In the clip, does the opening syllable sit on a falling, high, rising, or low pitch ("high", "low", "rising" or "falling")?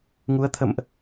rising